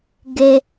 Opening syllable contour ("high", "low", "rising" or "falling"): high